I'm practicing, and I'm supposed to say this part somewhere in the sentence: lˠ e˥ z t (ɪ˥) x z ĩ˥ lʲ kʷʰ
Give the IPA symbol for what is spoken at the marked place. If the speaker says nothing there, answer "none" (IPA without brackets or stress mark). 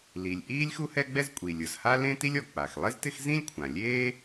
ɪ˥